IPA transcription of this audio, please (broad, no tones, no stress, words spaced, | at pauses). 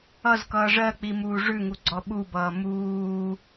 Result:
ʌzkʌː ʐɜk͡pimuː ʐʉŋuɡ͡ǀɔ ɓubʌː muː